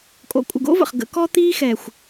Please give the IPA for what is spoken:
kʼo̰˨kʷʼə̰˨ɡo̰˦və̰˨χ ɡə̰˨˦ kɔ˦t̪iː˦ xɛ˨xʷ

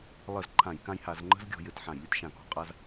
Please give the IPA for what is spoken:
lˠə˧˩˧z ǃʰã˧˩˧jkã˦jha˧˩˧z ŋ͡ǃə̤˦zɡʲɔ̤˧˩˧ jɘ˧˩˧tħã˧˩˧jlʲə˦t ʃã˧˩˧kɔ̤˧˩˧qʼa˦z

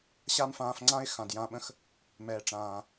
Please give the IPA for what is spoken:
ɕa˦mfãː˧fŋ͡ǀã˦ɪ̯ xã˨djã˧ɓə̃˦x | mɛː˨ʈ͡ʂãː˨

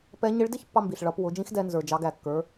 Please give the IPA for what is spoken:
pɛ˧˥ ɲɪ˧˥ɭdɪ˥çpːɑ˧mbi˩ɬ ɭʌ˩˧pwʊ˩˧d͡ʒĩ˧˥xdɛ˧ nzə˞˩d͡ʒɑ˩˧ɡæ˩kːə˞˩˧

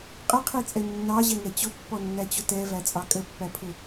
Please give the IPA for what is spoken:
qʼɪqʰit͡sʼɛ nːɑʑɛŋɛ t͡ɕʊpːɔnːæt͡ɕʊ tɛvæt͡sʼɑ kʼəpːæpʰʊ

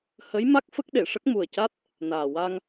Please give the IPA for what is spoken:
hə˧˥jma˦˥k̚ fə˦˥k̚ɗe˨˩˨ʂə˦˥k̚ mu˨˩ə̯ca˦˥t̚ | naː˨˩wa˧ŋ

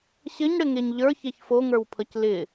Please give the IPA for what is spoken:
ɕɘɲɽɘŋeɲ ʎə˞çeç foŋə˞wpʰʌc lɪ

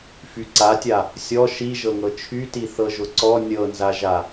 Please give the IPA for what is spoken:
fyǀatʲa | sʲɔ ʃiʒɤŋɤ t͡ʃʰyti θɤʒʊǀɔ nʲɤnzaʒa

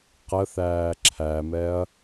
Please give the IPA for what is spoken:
qəθæː ǁʰæmɛɐ̯

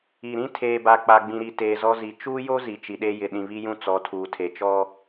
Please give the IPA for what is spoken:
i˨ ɾĩ˦tʰeː˨ba˨ k͡pa˨ɡ͡bĩ˨ɾi˨ teː˨zɔ˦zi˨ t͡ʃuː˦jo˦ zi˨t͡ʃi˨ɗe˦ jɪ˨ɗĩ˨βi˦jũ˦ t͡sɔ˨˦tʰuː˨tʰe˨ t͡ʃɔ˦

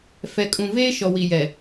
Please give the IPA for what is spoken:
fɛ˨kʼũ˨veː˦ ʃɔ˨wi˨jɛ˨

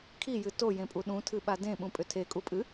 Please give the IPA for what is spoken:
kʰijɨ tojẽpʼu ɗũtʰɨɓa dẽɓũpʼʏ tʰekʼupʼɨ

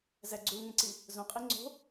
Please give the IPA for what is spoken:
zæɡ͡ǀulŋẽǀi | zõqʼi ŋ͡ǀo̤

